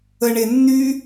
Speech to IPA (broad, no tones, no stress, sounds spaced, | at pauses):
ə ɳ e nː y